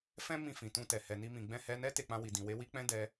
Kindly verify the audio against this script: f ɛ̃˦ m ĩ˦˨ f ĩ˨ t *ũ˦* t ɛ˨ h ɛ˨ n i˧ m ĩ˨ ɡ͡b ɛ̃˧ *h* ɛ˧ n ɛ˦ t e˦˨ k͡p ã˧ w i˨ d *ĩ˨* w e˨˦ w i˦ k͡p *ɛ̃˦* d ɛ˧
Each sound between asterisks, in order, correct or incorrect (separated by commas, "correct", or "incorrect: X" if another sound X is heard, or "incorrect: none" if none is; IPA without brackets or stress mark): incorrect: ũ˧, correct, correct, correct